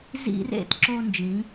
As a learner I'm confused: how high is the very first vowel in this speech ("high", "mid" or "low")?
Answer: high